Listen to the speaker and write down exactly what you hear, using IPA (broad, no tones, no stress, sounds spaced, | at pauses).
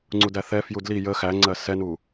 ŋ͡ǀ u d æ θ ɛ f j u d l i j ə x æ ŋ͡ǀ ɜ s ɛ n u